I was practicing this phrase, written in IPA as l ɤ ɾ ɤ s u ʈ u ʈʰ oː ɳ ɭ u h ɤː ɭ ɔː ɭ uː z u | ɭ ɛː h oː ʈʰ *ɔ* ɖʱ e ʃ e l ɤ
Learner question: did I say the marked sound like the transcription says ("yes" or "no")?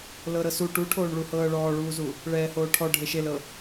yes